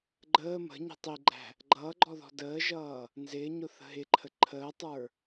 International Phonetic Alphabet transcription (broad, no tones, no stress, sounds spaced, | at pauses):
ɡ͡ǃ əː m ə̤ ɲ i̤ tˤ i ɡ͡ǃ æ̤ | ɡ͡ǃ ʌː ɡ͡ǃ ɔ ð ɔ̤ d əː ʒ ʌː | n z ɪː ɲ ʊ θ ə̤ ɦ ɪ ǃʰ ə ǃʰ əː tˤ ə˞